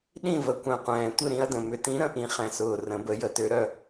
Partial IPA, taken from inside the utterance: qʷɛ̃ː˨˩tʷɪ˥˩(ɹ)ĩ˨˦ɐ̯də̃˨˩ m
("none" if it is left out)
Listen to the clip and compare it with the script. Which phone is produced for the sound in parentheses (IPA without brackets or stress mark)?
ɾ